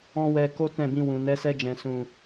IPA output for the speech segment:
ɔ̃˦ w ɛ˧ k o˦ t ɛ̃˦˨ b ĩ˧ w ũ˨ n ɛ˨˦ s ɛ˧ d͡ʒ ɛ̃˨ s ũ˨

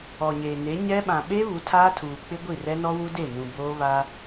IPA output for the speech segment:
ɔ˨ ɲ eː˨ n e˨˦ ɲ ɛ˦ ɓ ã˨ ɓ e˦ β u˨˦ tʰ aː˦ tʰ uː˨ k͡p ɪ˦ ɡʷ i˦˨ r ɛ˦ n ɔ˦ w u˦ d e˦˨ n ũ˨ b oː˦ β a˦

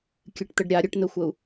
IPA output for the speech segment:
kʲ ɨ ʈ t̪ ə ɖ ɾʲ a ɾʲ ə ʈ n̪ ə xʷ ə u̯

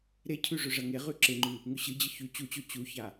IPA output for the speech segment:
ɾ e cʰ ʉ ʐ ɵ ʐ ɐ ŋ e ʁ ʉ ǁ e ŋ͡ǃ ʉ | ŋ ʉ ɕ ɨ d͡ʑ ɨ ç ʉ t͡ɕ u t͡ɕ o t͡ɕ u ç a

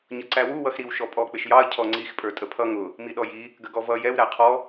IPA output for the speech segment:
ɲ ʌ ǀ æ w u w ʌ x ɾ i w ʃ ɔ pʼ ɔ k͡p ɪ ʃ j ɑ ɐ̯ cʰ ɔ ŋ͡ǀ i x pʼ ə˞ tʼ ə pʰ ʌ ŋ ʊ | m i ɗ ɔ j i | ɡ ə ɡ ɔ v ʌ j ɛ w ɾ æ qʰ ɔ

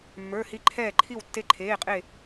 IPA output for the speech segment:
mː ə˞˩˧˩ h i˧˩ ǃʰ ɛː˧˩ ǃʰ i˧˩ w tː e˧˩ ǃʰ eː˩˧˩ qʼ e˧˩

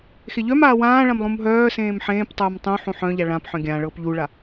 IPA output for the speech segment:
x e ʎ œ m aː w ãː ɭ ã m lˠ ũ m ɦ œː s ẽː m ħ ẽː p tˤ œː m tˤ ũ ħ ũ ħ œ̃ ʎ a ɭ ã p ħ œ̃ ɡʲ ã ɭ ɤː p ʎ u ɭ a

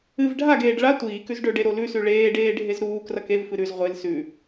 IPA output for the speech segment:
ɨ v ɖʱ a ɡ eː ɖ ɭ a tʷ iː k ʉ z ɖ ɵ ɖ e ɾ o l ʉ s ʉ ɭ eː ɖ eː ɖʱ e z ɾ uː k r ɐ k e v f ɨ ɾ ʉ z ʁʷ e l s ʉ

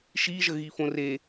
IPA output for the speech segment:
ʃ i ʒ ə ɣ i f õ r e

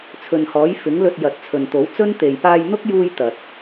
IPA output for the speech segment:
t͡sʰ ɵ˨ n h ɔː˨˥ j f ɪ˨˥ ŋ l ɵ˧ t̚ j ɐ˨ t̚ t͡sʰ ɵ˨ n t̪ o˨˥ w t͡s ɵ˥ n t̪ e˨ j p aː˧ j n̪ ʊ˥ k̚ j uː˧ j t̪ ɐ˨ t̚

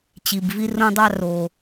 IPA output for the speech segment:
t͡ɕ i˨˩ b v i˥ r õ˥ dˤ ɑ˥ r o˨˩

